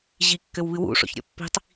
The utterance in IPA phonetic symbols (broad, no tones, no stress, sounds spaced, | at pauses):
ʑ i kː ɘ w β ɨ w ṵ ʂ ɔ̰ ç ɾʲ ɔ̰ pː i̤ tˤ